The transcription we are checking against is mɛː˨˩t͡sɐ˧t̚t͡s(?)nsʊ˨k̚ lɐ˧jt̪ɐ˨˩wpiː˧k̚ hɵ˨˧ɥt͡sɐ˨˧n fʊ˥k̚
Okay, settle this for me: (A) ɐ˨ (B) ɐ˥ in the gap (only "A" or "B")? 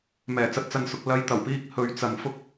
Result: A